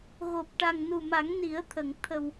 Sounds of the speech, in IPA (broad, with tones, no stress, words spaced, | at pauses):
ɣo˨˩p̚ʈa˨˩ŋ nu˨˩ma˨˩˦ŋni˨˩˦ə̯t̪ʰə˨˩˨ŋ t̪ʰə˨˩w